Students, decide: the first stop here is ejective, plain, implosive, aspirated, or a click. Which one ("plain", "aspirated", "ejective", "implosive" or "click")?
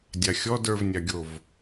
plain